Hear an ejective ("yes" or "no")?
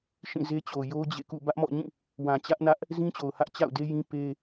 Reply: no